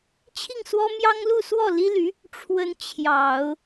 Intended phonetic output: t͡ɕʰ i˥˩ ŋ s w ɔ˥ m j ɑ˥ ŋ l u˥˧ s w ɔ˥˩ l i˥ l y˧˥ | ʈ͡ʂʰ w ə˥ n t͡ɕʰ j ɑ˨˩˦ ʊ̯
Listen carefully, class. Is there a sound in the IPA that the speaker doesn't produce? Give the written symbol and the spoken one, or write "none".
none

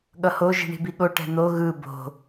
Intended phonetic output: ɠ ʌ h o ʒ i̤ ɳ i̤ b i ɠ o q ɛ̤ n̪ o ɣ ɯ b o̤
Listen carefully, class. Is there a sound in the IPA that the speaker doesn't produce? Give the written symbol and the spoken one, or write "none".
q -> ʈ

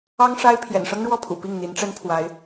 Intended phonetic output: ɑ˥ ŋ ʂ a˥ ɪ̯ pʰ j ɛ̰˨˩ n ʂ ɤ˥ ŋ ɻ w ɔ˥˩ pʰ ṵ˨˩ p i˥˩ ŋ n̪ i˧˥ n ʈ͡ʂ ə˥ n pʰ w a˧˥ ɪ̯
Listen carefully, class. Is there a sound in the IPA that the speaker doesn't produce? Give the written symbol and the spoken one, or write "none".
none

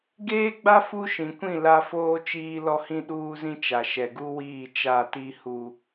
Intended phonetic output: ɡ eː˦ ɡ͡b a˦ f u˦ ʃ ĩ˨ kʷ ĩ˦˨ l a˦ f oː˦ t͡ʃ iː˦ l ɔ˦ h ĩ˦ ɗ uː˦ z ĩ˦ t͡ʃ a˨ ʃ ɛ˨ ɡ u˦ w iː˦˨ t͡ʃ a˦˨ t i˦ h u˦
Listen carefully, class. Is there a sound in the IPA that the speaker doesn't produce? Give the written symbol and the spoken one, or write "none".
none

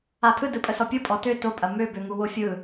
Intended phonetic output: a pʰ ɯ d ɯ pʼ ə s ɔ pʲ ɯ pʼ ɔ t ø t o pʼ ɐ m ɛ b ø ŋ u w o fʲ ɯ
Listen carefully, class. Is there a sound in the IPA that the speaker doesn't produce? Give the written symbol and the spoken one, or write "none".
ɛ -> ø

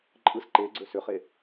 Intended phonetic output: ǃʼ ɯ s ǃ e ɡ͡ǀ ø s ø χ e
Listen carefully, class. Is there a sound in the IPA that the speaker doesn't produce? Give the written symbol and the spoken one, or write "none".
none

